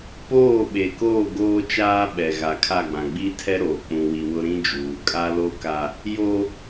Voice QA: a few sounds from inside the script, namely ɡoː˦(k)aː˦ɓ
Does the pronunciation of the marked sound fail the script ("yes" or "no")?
yes